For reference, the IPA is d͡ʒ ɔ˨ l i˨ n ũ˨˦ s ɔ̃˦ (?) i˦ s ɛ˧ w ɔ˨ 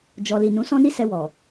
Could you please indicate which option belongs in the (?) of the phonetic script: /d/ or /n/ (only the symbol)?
n